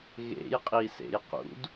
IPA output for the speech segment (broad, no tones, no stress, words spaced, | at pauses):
ɣḛjqʼisḛj qṵd